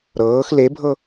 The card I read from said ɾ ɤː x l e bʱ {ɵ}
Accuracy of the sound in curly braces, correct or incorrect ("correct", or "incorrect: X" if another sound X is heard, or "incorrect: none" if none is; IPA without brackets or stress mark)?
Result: incorrect: ɤ